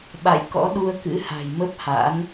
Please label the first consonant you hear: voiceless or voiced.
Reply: voiced